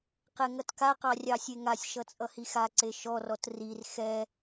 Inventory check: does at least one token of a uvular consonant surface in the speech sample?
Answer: yes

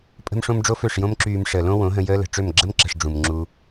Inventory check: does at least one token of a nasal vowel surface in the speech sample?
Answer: yes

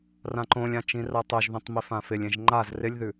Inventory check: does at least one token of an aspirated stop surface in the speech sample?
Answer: no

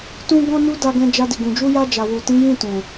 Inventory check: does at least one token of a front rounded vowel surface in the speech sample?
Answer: no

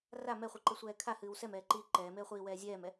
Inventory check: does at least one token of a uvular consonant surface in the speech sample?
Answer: yes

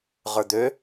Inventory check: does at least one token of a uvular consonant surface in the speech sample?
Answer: yes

